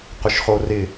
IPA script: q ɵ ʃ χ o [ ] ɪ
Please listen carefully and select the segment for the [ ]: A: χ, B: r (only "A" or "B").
B